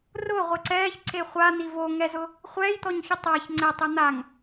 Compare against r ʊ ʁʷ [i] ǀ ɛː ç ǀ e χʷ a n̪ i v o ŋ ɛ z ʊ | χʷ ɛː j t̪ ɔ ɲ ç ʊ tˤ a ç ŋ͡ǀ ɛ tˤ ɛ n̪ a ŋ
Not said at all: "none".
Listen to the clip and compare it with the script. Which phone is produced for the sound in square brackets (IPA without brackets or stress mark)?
ɪ